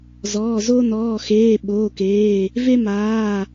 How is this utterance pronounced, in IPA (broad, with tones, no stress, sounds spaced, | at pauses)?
z ɔː˩˧˩ z o˦ n ɔː˩˧˩ x eː˩˧˩ ɓ oː˩˧˩ k eː˩˧˩ | v e˦ m aː˩˧˩